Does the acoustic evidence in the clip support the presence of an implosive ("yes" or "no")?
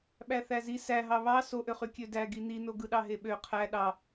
yes